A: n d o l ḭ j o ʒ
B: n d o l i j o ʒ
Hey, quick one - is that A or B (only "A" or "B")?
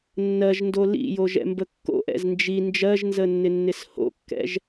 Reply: A